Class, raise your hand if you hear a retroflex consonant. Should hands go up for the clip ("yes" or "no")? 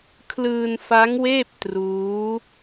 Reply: no